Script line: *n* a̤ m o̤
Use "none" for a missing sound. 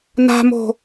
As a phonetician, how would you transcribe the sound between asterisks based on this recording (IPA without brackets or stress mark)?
n